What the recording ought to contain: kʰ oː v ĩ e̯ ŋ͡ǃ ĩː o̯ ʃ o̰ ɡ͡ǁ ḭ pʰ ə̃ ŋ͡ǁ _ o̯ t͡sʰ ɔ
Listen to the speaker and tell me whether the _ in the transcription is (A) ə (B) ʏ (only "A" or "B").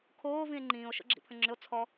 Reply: B